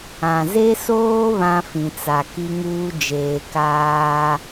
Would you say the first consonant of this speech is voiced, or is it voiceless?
voiced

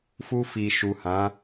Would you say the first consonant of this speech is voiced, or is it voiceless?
voiceless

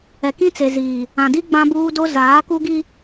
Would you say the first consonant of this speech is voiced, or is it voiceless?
voiceless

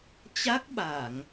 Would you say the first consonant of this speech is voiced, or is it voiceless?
voiceless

